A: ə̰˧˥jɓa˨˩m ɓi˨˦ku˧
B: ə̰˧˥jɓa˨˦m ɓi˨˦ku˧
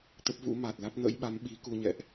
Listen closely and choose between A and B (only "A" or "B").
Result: B